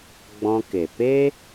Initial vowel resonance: nasal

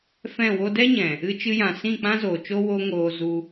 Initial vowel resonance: nasal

